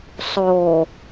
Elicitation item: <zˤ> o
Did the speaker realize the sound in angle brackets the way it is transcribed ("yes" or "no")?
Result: no